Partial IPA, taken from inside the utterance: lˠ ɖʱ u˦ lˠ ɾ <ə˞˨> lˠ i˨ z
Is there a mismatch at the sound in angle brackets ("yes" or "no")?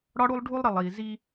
yes